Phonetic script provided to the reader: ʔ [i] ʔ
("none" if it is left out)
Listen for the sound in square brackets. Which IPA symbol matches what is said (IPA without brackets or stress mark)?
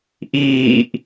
iː